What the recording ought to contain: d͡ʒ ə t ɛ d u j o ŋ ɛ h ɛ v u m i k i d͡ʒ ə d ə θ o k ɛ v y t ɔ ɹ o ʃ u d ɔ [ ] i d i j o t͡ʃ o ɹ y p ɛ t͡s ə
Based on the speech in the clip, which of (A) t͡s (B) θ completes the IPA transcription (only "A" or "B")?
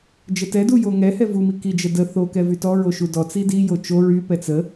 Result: A